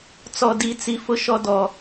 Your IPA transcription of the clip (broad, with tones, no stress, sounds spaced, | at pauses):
t͡s ɔ˨ d i˨ t͡s i˨ f ʊ˨ ʃ ɔ˨ d ɔ˨